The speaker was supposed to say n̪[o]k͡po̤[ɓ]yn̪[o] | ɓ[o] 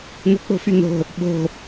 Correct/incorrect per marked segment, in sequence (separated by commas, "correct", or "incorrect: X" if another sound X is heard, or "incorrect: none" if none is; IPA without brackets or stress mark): incorrect: o̤, incorrect: f, incorrect: o̤, incorrect: o̤